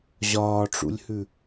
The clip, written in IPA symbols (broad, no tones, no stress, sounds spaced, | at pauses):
ʑ ɒː ʈ͡ʂ ṵ lʲ h ʉ